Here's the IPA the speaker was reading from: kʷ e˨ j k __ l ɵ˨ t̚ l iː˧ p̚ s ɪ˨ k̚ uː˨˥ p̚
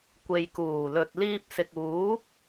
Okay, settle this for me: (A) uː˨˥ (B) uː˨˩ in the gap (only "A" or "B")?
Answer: B